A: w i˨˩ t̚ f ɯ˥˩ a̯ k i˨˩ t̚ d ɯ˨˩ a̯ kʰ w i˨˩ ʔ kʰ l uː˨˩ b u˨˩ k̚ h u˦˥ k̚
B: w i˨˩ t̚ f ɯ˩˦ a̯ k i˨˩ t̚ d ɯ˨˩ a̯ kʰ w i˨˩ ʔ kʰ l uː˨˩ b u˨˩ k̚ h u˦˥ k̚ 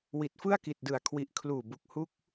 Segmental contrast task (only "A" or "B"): A